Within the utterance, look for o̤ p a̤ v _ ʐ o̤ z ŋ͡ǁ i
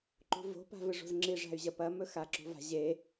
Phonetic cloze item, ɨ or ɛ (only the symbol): ɨ